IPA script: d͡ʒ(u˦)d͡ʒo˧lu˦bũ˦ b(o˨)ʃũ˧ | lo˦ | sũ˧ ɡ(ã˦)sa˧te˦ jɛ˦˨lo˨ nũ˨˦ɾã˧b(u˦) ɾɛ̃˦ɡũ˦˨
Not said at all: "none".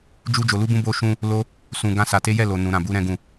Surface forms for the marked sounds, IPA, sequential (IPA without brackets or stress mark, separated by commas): u˦, o˧, ã˦, u˦